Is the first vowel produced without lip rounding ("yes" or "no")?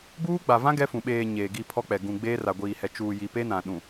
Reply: no